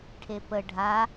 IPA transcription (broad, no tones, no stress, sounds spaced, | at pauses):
ʈʰ e p ə ɖʱ a